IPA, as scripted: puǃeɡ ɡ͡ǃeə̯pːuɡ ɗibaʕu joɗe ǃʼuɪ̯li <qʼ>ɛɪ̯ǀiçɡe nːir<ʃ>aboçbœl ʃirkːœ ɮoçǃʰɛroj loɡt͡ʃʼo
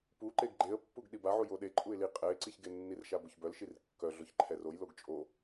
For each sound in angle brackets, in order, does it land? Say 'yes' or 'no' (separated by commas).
yes, yes